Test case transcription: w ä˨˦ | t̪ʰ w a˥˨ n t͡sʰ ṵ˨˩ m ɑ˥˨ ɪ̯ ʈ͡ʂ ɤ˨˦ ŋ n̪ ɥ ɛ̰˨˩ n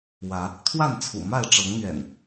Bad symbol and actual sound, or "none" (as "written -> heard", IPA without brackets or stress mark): ɑ˥˨ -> a˥˨